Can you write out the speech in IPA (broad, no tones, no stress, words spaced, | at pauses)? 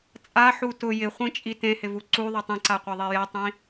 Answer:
t͡sʼaħu tʊ jɪχʷĩt͡ʃʼi tẽhɪvu ǀuðˤɪ tˤĩǀaqʷaðˤe jɛtˤĩ